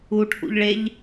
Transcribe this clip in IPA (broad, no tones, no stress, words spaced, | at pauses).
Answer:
uʈʰṵʎɭeʎ